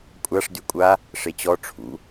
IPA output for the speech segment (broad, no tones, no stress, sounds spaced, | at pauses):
kʷʼ a ʂ d y kʷʼ a | ʂ e t͡ɕ ɔ ʈ͡ʂʰ ṵ